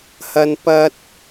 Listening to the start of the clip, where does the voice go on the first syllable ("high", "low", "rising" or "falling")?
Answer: high